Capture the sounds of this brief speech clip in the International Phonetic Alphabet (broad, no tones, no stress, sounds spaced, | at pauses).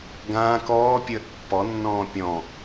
ɡ ãː k ɔː pʲ əː ʔ pː ɔ nː ɔ̃ː pʲ ɔ̃